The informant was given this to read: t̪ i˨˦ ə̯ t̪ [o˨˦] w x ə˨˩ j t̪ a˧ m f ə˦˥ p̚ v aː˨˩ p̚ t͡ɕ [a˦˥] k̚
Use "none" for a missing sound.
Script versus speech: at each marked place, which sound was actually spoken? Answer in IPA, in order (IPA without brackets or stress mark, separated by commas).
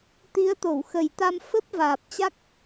o˧˩, a˦˥